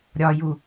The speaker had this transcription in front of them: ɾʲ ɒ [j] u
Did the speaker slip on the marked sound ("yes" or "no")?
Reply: no